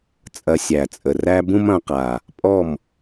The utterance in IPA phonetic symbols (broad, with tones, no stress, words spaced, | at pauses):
t͡sʼɐ˧sʲæ˨˩t͡sʼə˨˩ ræ˥ bũ˥mɐ̃˩˧qa˨˩ | pʼɔ˥˨m